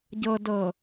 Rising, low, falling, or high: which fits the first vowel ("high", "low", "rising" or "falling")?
low